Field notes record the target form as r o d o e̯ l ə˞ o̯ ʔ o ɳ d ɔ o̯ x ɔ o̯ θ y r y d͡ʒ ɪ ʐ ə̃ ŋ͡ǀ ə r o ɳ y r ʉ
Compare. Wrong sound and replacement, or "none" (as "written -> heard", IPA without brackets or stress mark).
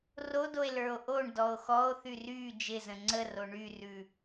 ʐ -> z